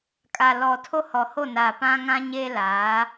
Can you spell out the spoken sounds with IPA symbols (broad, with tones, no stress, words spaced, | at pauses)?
kʼa˨lɔ˨ tʰo˦hɔ˨ho˦˨ na˨ pã˦ŋã˦ɲeː˦laː˨˦